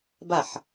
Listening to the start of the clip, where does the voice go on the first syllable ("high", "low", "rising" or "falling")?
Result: falling